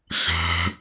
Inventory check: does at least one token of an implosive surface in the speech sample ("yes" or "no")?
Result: no